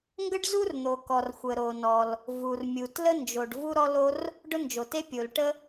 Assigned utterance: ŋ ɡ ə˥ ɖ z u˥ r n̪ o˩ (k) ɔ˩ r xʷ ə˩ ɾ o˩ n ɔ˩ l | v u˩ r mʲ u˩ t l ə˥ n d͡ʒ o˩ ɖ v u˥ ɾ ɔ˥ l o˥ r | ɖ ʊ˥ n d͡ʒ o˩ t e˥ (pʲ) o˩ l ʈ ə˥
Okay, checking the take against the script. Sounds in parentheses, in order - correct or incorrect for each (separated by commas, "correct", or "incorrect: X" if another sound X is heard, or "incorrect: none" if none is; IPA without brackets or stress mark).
correct, correct